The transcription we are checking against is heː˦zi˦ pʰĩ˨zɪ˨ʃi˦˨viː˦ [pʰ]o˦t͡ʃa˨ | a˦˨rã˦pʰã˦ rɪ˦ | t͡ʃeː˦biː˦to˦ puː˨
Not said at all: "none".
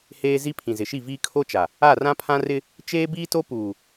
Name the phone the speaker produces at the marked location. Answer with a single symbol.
kʰ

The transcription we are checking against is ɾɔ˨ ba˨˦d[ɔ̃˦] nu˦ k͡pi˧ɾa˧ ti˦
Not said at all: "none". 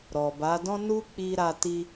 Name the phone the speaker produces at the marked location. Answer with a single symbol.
ɔ̃˦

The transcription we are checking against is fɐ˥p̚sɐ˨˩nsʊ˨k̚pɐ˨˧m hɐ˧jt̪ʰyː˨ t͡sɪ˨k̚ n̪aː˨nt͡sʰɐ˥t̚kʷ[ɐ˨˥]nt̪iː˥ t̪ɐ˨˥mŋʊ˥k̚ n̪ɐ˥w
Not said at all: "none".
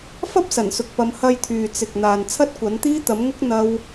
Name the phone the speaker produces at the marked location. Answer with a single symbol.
ɐ˨˥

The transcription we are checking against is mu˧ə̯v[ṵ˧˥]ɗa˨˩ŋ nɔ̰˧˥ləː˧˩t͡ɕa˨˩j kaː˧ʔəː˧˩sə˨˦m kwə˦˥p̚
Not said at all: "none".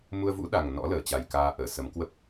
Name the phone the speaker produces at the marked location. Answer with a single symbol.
ṵ˧˥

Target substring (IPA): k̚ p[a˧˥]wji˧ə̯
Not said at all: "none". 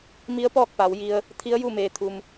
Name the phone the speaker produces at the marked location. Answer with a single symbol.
a˩˧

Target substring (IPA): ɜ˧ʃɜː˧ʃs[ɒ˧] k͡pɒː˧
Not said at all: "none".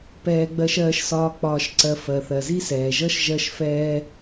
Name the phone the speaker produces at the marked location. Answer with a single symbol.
ɒː˧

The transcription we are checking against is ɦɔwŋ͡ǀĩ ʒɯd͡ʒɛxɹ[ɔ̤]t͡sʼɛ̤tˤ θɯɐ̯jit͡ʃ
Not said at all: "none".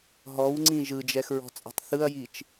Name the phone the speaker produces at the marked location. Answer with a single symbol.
ɔ̤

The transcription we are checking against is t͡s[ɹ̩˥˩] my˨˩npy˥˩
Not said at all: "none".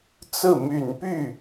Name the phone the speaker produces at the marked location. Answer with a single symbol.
ɹ̩˥˩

